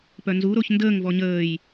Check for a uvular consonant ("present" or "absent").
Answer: absent